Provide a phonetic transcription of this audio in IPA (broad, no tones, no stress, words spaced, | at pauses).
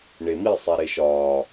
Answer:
ɳemi sˤæɾeʃɒː